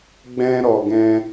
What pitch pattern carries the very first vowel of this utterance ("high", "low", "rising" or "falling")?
high